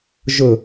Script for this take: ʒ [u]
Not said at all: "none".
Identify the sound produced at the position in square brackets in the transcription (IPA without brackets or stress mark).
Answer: ʊ